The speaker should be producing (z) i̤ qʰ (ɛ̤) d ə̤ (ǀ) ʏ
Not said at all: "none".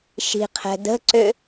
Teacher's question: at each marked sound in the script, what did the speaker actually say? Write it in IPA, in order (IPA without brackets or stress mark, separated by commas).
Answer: ʃ, ɛ̤, ǀ